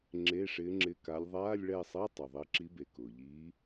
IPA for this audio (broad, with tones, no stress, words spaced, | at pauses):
ŋ͡ǁe˧˥˧ʂɪː˧˥ŋ͡ǁɪ˧˥˧ka˧˥lʲ ðˤaː˧˥˧lʲ ɭɛ˦˨sˤe˧˥˧ tˤu˩ðˤɪː˧˥ǁi˧˥be˩ kʊː˩ʎiː˧˥